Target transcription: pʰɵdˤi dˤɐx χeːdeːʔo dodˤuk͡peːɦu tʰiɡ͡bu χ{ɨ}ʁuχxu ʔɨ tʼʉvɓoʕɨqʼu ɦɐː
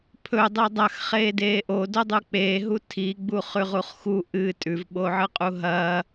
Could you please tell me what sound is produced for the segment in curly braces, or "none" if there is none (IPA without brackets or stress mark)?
ʉ